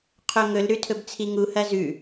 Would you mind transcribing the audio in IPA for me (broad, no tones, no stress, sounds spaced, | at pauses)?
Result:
qʰ o ŋ ɵ l ɾ ʉ tʰ ɵ b t͡sʰ i ŋ u h ɐ z ʉ